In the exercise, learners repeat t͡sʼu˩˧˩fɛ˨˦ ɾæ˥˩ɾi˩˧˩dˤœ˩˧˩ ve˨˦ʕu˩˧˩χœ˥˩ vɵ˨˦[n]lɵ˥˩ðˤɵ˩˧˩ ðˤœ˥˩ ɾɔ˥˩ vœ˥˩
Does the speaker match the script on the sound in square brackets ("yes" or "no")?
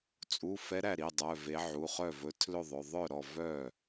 no